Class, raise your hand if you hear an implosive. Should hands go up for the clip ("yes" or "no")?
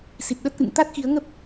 yes